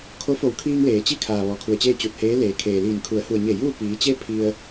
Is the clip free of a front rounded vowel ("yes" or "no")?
yes